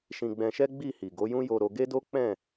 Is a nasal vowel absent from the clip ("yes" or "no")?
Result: no